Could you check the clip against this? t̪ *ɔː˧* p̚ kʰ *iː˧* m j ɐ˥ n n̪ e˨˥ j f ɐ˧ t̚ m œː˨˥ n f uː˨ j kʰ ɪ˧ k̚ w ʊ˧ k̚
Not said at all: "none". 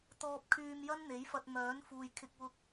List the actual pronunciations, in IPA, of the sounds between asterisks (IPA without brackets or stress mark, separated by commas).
ɔː˧, yː˧